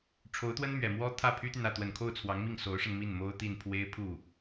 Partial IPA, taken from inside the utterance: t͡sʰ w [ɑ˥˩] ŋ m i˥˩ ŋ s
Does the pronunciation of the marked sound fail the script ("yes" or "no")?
yes